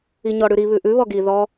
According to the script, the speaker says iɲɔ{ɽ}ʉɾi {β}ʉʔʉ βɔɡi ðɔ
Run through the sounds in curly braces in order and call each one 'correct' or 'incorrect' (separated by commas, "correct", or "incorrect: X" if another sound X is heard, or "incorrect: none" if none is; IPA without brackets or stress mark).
correct, correct